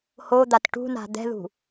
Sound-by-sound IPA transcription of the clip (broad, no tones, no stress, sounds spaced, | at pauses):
h o d̪ a t ʈ ṳ n a̤ d̪ ɛ̤ ð ṳ